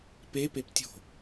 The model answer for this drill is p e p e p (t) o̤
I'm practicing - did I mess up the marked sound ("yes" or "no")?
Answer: yes